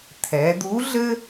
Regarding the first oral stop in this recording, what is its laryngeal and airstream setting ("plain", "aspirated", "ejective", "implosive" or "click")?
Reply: aspirated